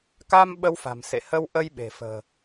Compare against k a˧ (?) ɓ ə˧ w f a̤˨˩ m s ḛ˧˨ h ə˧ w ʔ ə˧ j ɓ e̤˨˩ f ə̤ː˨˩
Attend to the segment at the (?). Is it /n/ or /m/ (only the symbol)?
m